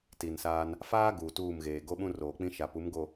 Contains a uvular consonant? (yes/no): no